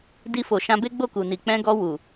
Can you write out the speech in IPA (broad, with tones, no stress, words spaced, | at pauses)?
di˧fo˨ʃã˧ be˦ɡ͡bo˦˨ku˨ni˨ k͡pɛ̃˧ɡɔ˧ wu˨